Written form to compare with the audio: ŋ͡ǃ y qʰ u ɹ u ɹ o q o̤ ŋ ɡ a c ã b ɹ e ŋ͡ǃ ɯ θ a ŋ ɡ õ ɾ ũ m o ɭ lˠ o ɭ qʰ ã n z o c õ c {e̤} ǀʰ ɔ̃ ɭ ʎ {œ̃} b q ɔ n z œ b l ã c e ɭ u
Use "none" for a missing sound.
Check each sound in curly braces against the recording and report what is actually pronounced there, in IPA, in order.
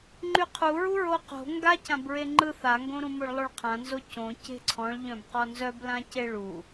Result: e̤, œ̃

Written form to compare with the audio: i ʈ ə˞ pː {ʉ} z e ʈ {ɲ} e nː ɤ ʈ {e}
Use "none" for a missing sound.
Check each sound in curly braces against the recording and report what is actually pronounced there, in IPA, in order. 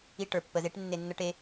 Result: ə, nː, e

